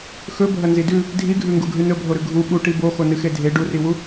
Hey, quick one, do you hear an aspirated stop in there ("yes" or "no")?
no